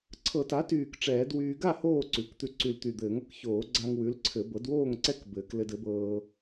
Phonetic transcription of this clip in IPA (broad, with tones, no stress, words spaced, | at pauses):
ǀʰɤ˨˩˦ta˩˥tyː˨˩k ʈ͡ʂɛː˨˩˦dwyː˧ ɡa˥˨ hoː˥˨ǀʉ˩˥kt̪ʉ˧ ǀy˨˩lt̪y˨˩ d̪ɘː˨˩˦ŋɤ˧k çoː˨˩˦ɡ͡ǀa˧ŋ wʉ˩˥lǀʰɘ˨˩˦ bɤ˩˥dwoː˥˨ŋǀɛ˥˨k bɘː˨˩˦klɘ˧d ɘ˩˥bɤː˧